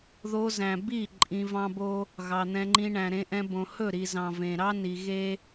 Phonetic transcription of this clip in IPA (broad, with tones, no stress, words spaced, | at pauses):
ðo˧zæ̃˨ bi˦˨ ǃʼĩ˧vɑ̃˦bo˦ | ɣɑ˨n̪ɛ̃˧ŋ͡ǃĩ˧ ɳæ̃˨ɾẽ˧ʔɛ̃˧bõ˨ hɵ˦˨ɾi˨zɑ̃˨ vẽ˨ɾɑ˦ ni˨ ɣe˦